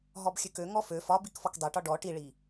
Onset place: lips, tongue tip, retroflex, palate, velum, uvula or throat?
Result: throat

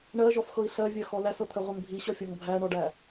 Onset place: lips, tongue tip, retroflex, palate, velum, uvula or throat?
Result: retroflex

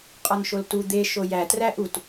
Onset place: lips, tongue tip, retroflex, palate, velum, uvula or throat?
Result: uvula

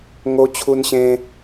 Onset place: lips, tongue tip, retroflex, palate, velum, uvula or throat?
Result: velum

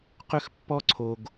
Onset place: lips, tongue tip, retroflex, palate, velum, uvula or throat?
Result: uvula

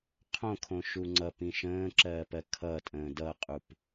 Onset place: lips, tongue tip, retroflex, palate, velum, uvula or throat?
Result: uvula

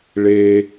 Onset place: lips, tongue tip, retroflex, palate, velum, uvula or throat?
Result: retroflex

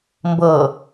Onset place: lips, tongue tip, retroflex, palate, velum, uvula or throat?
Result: lips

